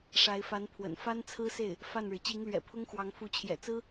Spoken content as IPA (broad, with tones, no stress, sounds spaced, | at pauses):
ʂ a˧˥ ɪ̯ f a˧˥ n pʰ w ə̰˨˩ n f a˥ n t͡sʰ ɹ̩˥ s e˥˩ ɪ̯ | f a˥˩ n ɻ ɻ̩˩ t͡ɕ i˧˥ ŋ l ɥ ɛ̰˨˩ pʰ ʊ˥ ŋ x w ɑ˧˥ ŋ f u˧˥ t͡ɕʰ j ɛ̰˨˩ t͡s ɹ̩˥